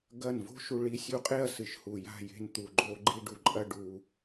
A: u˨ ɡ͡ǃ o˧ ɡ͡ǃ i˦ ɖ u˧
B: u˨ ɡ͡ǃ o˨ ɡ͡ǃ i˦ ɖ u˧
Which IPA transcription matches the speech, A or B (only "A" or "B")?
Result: A